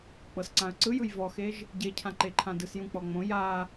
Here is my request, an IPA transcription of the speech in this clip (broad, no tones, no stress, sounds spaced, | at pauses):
k͡p ɤ s ǀ ã ə̯ ǀ ɯ j ɯ j v ɔ x e ʒ | ɟ e cʰ ã ǃ e ǃʰ ã d ɯ s j ũ k͡p ɔ ŋ͡m õ j a